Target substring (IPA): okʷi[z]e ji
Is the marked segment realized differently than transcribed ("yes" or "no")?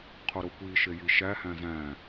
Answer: yes